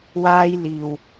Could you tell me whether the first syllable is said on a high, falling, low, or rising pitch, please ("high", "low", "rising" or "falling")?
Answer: high